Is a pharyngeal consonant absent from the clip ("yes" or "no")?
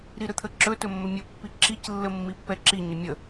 yes